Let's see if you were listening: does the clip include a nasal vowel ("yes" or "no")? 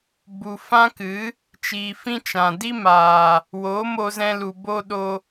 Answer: yes